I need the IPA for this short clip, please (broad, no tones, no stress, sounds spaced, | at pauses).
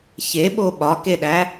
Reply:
ç e ɓ o ɓ ɒ k e ɗ æ